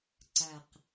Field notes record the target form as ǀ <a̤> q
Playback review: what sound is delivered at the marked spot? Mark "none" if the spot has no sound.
a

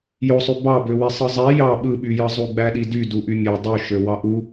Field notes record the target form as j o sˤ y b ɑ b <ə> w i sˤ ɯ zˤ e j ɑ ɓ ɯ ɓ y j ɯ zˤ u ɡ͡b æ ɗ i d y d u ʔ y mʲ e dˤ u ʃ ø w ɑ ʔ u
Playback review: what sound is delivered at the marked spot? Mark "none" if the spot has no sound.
ø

